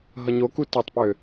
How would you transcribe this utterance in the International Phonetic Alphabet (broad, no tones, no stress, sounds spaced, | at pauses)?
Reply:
ɦ ʌ ɲ o k u t o tˤ p ø